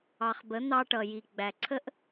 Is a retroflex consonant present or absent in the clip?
present